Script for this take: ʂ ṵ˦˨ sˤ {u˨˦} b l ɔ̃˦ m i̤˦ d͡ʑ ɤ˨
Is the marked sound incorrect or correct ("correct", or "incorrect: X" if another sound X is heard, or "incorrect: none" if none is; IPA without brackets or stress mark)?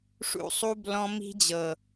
incorrect: u˦